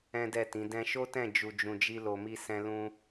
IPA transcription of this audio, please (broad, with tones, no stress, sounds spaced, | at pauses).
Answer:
ɛ̃˦ d ɛ˦˨ t ĩ˨˦ d ɛ̃˧ ʃ o˦ t ɛ̃˦˨ d͡ʒ u˨ d͡ʒ ũ˨ d͡ʒ i˧ l o˧ m i˦ s ɛ̃˦ l ũ˦